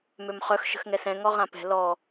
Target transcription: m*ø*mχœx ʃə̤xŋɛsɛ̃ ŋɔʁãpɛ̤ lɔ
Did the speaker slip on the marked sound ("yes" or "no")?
no